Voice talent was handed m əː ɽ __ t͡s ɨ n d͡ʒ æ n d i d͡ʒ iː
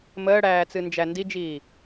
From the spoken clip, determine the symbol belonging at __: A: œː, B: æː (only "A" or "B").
B